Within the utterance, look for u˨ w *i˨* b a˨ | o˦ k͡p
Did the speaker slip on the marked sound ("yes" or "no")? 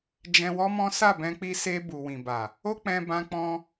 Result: yes